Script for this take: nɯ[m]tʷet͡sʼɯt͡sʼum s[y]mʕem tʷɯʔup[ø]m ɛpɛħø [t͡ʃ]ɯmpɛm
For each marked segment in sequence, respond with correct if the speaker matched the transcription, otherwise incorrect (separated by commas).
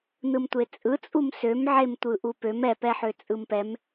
correct, incorrect, correct, incorrect